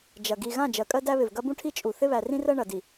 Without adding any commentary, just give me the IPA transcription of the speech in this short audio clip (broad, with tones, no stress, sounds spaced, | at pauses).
d͡ʒ ɐ˨ ɡ i˨ ɣ ã˦˨ d͡ʒ ɜ˨ kʼ ɜ˦ d æ˦ β ɪ˨ v ɡ ɐ˦ b ũ˦ ʈʰ i˦ t͡ʃʼ u˨ θ ɪ˦ β æ˨ r ĩ˦ r ɜ˦ ɳ ɐ˨ d i˨